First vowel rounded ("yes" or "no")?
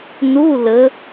yes